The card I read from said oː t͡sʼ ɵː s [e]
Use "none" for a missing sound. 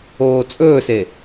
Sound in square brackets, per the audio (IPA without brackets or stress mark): e